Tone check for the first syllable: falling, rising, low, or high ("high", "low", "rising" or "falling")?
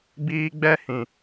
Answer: high